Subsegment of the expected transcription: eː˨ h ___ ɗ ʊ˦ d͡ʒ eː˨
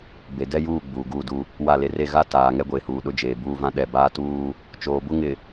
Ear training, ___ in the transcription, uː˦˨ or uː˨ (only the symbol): uː˨